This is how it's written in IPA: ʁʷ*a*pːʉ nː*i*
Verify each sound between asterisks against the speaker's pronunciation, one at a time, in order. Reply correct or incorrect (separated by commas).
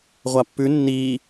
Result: correct, correct